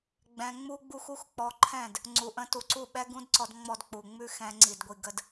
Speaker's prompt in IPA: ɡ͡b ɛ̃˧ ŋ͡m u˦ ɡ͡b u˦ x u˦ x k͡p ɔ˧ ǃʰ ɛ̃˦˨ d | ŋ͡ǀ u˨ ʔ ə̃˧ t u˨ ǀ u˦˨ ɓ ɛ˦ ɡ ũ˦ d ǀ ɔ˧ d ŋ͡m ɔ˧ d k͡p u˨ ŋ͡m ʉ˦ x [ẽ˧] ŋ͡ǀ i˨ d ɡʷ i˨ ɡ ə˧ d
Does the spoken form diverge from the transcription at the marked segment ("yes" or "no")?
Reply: yes